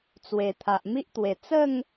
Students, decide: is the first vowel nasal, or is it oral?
oral